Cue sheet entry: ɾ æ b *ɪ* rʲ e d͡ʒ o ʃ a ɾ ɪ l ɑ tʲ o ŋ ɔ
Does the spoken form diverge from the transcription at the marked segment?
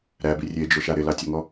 yes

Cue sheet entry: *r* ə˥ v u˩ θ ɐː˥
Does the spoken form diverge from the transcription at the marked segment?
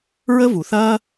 yes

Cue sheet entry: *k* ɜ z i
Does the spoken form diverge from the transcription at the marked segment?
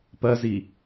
yes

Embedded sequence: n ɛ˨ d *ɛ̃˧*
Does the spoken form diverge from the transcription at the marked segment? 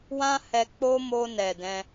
no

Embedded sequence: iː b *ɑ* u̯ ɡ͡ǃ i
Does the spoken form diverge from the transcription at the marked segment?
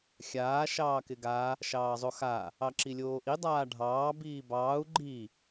yes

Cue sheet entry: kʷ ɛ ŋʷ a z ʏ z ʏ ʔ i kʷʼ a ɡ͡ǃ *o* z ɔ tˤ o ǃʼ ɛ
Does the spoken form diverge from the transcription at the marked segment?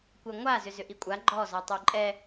yes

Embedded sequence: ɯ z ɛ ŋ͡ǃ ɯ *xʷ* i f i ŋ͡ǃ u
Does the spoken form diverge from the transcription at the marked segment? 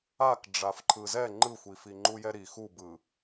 no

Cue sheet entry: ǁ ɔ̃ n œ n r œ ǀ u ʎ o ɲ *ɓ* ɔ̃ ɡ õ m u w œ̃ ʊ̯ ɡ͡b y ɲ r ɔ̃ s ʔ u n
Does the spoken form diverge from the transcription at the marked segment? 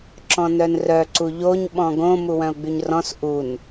no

